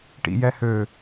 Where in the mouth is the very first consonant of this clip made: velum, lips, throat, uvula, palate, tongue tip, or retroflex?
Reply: retroflex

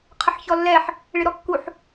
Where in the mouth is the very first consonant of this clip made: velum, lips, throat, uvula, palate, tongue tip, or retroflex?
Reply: uvula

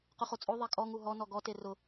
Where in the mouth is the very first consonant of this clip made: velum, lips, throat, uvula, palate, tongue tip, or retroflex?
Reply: uvula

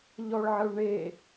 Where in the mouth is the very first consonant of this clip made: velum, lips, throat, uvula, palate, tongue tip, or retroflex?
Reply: palate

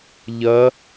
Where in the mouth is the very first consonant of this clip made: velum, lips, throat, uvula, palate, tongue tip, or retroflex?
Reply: palate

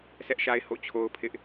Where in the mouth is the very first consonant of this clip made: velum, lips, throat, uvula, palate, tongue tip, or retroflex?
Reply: tongue tip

